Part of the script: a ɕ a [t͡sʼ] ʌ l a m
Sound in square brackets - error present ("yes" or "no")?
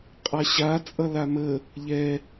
no